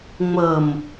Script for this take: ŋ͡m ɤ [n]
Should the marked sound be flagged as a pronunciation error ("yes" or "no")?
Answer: yes